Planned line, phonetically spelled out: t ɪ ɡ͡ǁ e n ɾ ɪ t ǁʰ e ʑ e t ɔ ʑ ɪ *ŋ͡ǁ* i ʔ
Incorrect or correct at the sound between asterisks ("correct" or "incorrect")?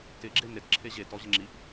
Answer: correct